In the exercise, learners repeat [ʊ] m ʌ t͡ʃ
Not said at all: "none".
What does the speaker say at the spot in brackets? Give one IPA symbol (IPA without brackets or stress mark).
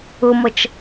ʊ